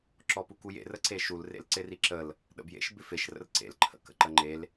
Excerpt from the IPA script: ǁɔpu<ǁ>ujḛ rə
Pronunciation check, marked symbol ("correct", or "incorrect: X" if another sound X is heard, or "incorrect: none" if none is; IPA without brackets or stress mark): incorrect: k